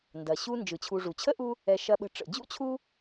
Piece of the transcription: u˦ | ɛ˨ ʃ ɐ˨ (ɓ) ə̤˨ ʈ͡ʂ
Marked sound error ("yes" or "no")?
no